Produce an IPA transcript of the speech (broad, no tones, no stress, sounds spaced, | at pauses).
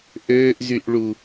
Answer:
ʔ øː ʔ z y ʔ ɭ u